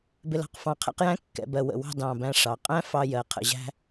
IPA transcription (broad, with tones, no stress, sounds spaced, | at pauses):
b ɪ˧ l ɑ̤˩˧ q f ɑ̃˧˩ qʰ ɛ̰˥ q j æ̃˥ kː ɛ̰˩˧ b ɜ˧˩ w ə̰˧˩ w ɑ̤˥˧ d ɑ̃˧˩ b æ̃˧ ʂ ɑ˩˧ qʼ æ̃˥ f ɑ˧ j ɜ˩˧ qʰ ə̰˧ ʑ æ̤˥